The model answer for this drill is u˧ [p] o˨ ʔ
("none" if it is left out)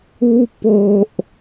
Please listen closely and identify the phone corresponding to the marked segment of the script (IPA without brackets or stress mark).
p